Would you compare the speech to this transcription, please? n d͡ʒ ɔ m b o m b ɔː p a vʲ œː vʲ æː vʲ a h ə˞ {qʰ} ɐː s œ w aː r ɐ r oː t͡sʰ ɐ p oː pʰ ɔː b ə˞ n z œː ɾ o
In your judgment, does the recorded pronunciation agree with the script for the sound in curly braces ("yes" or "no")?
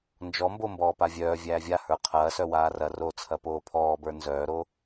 yes